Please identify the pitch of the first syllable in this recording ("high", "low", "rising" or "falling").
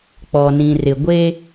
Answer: low